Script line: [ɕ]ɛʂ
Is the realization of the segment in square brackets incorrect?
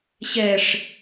no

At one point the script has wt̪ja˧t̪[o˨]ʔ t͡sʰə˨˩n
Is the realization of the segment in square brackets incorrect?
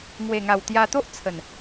yes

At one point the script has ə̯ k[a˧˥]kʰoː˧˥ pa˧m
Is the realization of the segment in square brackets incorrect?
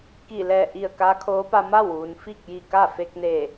no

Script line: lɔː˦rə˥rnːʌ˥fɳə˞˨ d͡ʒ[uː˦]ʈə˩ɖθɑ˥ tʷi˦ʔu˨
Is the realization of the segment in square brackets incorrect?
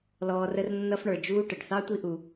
no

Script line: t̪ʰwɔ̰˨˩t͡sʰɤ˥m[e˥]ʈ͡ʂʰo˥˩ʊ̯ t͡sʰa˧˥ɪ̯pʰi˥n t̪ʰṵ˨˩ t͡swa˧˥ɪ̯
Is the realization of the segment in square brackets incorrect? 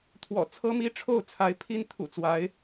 yes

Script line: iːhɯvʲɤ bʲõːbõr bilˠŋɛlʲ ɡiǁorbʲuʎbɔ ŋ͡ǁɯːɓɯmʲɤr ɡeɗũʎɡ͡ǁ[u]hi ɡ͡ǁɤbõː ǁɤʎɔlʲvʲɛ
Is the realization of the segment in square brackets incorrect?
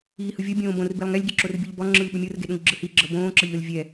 yes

